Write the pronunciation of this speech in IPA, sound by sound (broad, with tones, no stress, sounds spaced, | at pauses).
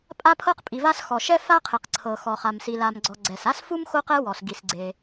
pʼ a˥ pʰ ɤ˥ q pʼ i˩ v a˥ s x ɔ˩ ʃ ɛ˥ f a˥ qʰ e˩ q ǀʰ ɤ˩ x ɔ˩ χ a˩ m s i˩ l a˩ m ɡ͡ǀ ɔ˩ ɡ͡ǀ ɛ˩ s a˥ s f u˥ m x o˥ q ɛ˥ w ɔ˩ s ɡ i˩ s ɡ͡ǀ e˩